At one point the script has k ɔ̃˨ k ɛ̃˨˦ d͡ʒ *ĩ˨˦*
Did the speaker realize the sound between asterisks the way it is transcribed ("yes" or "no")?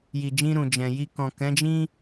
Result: no